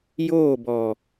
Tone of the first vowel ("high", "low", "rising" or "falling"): falling